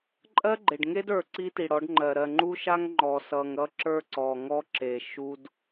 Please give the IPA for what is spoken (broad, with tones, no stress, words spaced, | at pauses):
ǃʼɜ˦ɡ͡ǃe˨ɖ ŋe˦də˞˨ ǀi˦ti˨ɽɔ˨˦ɖŋ͡ǃɜ˨ ɾɜ˨ŋ͡ǃu˦ ʃa˦ŋ ŋ͡ǃɔ˨sʌ˨ŋɾʌ˦ ǁə˞˦ ǀɔ˨ŋɔ˦ǁe˨ ʃu˦d